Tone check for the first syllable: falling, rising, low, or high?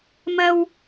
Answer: low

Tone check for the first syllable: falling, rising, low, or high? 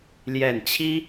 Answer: low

